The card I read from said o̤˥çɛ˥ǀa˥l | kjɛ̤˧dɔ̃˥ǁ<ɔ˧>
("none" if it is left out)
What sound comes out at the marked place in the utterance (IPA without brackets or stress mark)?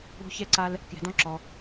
ɔ˧